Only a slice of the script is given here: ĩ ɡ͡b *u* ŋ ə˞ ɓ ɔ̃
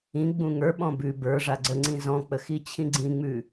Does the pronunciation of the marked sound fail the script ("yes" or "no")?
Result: yes